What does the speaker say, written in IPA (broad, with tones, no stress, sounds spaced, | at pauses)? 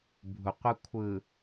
bʱ u˨ qʷ ɯ˦ kʷʰ ɯ˨